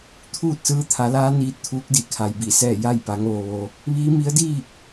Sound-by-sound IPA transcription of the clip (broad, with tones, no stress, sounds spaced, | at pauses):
t̪ʰ uː˥˨ t̚ s ɯː˧ t̪ʰ a˩˧ l aː˧˥ n iː˧ t̚ t̪ʰ uː˧˥ k̚ d i˧˩ kʰ a˩ j b i˧˩ s ɛː˥˨ j a˥˨ j p a˩˧ ŋ ʋ o˩ ʋ o˩ | ʋ iː˧˥ m i˧˥ ə̯ d iː˥˨ k̚